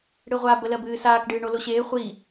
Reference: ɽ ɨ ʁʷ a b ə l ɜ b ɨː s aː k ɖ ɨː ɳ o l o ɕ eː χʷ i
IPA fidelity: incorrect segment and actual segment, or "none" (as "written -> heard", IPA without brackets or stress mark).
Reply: none